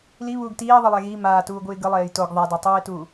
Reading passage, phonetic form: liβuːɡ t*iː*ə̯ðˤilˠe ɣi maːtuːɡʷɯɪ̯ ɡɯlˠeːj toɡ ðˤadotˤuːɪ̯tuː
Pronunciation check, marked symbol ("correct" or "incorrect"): correct